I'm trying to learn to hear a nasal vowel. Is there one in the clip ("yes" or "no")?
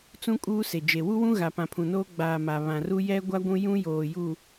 yes